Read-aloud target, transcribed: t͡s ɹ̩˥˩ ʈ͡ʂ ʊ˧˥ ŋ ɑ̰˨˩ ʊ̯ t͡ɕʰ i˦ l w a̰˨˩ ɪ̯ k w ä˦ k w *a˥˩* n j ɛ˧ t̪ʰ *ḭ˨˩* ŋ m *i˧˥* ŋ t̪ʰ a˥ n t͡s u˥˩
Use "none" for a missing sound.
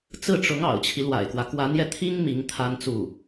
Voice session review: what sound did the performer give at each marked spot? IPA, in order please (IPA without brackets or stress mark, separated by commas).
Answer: a˧˥, i˥, i˧˥